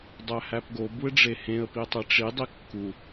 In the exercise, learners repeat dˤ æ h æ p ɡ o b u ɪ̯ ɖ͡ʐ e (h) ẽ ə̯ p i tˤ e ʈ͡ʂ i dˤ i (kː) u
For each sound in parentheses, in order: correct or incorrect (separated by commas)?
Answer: correct, correct